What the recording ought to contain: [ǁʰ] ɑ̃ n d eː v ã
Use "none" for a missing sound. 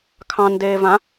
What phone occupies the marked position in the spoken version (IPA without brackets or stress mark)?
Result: kʰ